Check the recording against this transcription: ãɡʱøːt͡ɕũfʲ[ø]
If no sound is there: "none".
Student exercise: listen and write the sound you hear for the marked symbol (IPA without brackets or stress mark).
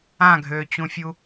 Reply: u